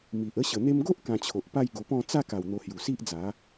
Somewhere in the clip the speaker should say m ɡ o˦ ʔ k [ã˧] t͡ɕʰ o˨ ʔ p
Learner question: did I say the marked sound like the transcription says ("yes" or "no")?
yes